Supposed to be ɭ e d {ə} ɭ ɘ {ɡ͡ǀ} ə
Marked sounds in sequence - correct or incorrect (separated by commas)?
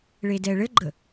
incorrect, incorrect